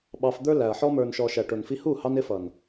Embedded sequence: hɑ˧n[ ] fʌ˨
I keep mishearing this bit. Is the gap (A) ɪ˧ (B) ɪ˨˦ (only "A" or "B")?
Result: B